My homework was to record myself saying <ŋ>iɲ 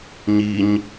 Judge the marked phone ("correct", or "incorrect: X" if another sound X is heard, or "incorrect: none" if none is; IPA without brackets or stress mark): incorrect: ɲ